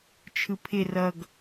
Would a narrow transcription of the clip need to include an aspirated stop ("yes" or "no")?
yes